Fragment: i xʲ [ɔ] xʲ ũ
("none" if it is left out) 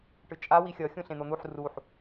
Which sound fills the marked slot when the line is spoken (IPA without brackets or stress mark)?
ʌ